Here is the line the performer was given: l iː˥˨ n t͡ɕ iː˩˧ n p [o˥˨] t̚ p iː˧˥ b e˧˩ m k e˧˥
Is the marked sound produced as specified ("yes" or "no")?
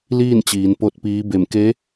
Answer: yes